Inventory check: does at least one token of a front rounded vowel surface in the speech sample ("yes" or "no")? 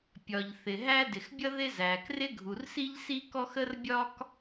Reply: no